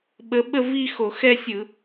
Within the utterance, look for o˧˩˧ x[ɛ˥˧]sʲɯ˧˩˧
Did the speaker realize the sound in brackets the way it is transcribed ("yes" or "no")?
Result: yes